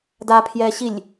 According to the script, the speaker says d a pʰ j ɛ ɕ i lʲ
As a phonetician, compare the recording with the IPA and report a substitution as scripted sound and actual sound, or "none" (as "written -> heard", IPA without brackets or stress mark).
none